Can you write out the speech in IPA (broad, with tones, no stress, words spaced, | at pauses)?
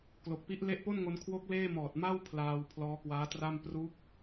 klo˨˩k̚pi˦˥ʔ le˦˥ʔpo˥˩nŋo˧n kʰwo˦˥k̚ leː˥˩mɔː˨˩t̚ ma˥˩w pʰlaː˧w pʰlɔː˦˥kwaː˦˥tra˥˩m pru˦˥k̚